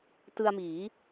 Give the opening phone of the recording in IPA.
t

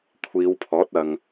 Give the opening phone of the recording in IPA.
kʷʰ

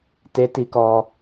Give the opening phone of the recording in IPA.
t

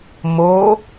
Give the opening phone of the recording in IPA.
m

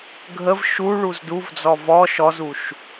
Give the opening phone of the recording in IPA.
ɡʱ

